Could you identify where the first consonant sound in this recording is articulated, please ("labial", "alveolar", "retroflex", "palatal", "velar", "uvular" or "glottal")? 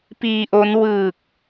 labial